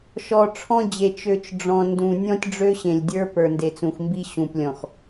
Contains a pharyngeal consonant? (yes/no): no